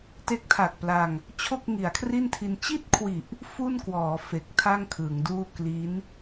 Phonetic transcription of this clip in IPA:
t e˦˥ k̚ tʰ a˨˩ k̚ p l a˧ ŋ | t͡ɕʰ o˥˩ k̚ ŋ i˩˦ a̯ kʰ r i˥˩ n tʰ i˧ n t͡ɕ i˥˩ t̚ kʰ w i˨˩ ʔ | f u˥˩ n k w ɔː˩˦ f e˨˩ k̚ tʰ a˥˩ ŋ kʰ ɯ˩˦ ŋ d uː˥˩ k l i˦˥ n

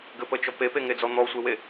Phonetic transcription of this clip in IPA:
ɡ ɘ p ə t͡ʃ ɔ p e p e ŋ e d͡z ɔ n̪ ɔ sʷ e w e

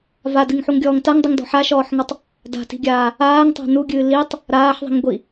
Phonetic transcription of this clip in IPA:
v a d ɨ ŋ ħ u ŋ ɡʲ ɔː ŋ t a ŋ dˤ ɨ ŋ d ɔ̤ ħ a ʃ ɔː ħ ŋ ɔ tˤ | d a̤ t i̤ ɡʲ aː | aː ŋ tˤ a̤ n u ɡʲ ɨː l i tˤ | ɾ aː ħ ðˤ i̤ ŋ ɡʷ i

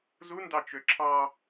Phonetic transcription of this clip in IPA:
z u n d ɑ t͡ʃ ø ǁʰ ɑ

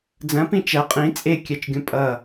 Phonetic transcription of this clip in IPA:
d͡z ɐ̃ p ĩ t͡ʃ æ qʼ ĩ t͡sʼ e kʲ æ t͡ʃ ɡʲ õ pʼ ʌ

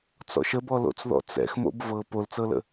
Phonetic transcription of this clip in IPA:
t͡s ɔ̰ ʃ ə b ɔ l o̰ t͡s ð ɔ̰ t͡s ɛ̰ x m o̰ b v ɤ p o l t͡s ɤ l ə̰

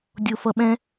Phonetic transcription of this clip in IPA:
dʲ o f ʌ ɓ ɛ̃

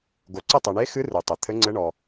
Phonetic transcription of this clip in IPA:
ɡ o˩ ǀ ɘ˦˨ tˤ ɘ˩ ɳ e˨˦ x ɨ˨˦ r ɨ˩ tˤ ɘ˩ t̪ʰ ɘ˨˦ ŋ͡ǀ ɘ˨˦ ɳ ɔ˩

